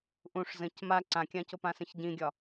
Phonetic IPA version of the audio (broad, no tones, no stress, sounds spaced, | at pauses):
ʔ ũ ʂ z ə̃ c m a ǀ ã kʲ ã c o p ã s ə̃ ç ɟ ĩ ɡʲ ɒ